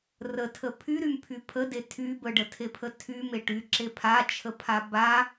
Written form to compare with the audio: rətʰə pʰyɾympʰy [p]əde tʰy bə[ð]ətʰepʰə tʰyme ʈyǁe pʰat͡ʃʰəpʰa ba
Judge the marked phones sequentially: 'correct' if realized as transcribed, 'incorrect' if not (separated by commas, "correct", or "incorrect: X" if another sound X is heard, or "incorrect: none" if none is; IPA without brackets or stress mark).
incorrect: pʰ, incorrect: ɖ